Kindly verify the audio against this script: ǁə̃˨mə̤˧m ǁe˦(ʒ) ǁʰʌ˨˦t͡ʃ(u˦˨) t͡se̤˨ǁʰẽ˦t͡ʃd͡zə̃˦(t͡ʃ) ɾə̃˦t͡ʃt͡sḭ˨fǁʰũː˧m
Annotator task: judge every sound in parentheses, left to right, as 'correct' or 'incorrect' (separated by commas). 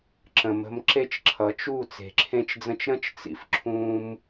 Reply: incorrect, correct, correct